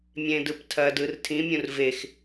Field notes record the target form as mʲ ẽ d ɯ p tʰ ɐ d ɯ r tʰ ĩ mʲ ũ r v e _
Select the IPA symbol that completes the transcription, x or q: x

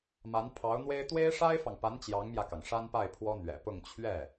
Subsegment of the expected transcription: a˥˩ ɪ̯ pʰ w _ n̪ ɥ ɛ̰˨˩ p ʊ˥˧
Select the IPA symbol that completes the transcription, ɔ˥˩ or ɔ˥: ɔ˥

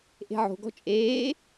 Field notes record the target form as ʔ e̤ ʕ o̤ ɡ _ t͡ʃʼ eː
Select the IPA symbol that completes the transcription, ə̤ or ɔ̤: ɔ̤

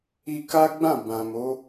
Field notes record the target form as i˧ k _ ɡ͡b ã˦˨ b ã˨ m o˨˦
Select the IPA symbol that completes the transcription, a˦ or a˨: a˦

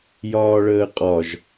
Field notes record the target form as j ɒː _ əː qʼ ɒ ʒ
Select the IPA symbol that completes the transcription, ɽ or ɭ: ɭ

